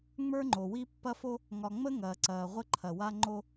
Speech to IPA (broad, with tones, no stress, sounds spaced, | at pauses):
ŋ͡m ə˞˦ ŋ͡ǃ o˨ w i˦ pː ɐ˦ f o˦ | ŋ ɒ˨ ŋ͡m ə˦ ŋ ɐː˨ ǀ ɐː˨ ʁʷ ə˦ ǃʰ ɐ˨ w a˦ ŋ͡ǃ o˦